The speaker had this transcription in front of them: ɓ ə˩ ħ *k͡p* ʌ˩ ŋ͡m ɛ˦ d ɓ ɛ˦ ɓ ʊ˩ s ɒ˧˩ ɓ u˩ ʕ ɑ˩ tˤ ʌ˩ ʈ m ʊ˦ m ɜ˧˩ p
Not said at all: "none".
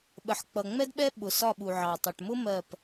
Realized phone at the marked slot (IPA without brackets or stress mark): k͡p